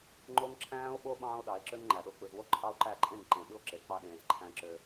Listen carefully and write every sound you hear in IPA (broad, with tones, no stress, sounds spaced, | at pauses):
ŋ͡ǃ o˦ ŋ ǁʰ æ̃ː˦ o̯ ɓ o˦ ɓ ɑ̃ː˦ o̯ ɗ ɑ˨˦ e̯ ǁ ø˦ ŋ ŋ͡ǃ æ˨ ɗ o˨ k͡p ɯ˨ z w o˦ ǃʼ ɑ˦ o̯ ǃ æ˦˨ ǃʼ ẽ˦˨ ŋ ǃ ẽ˨ ɓ ɯ˦ o̯ ǁ e˨ k͡p ɑ˦ ɗ ẽː˨ z ǃʰ æ̃˦ ǁ ø˦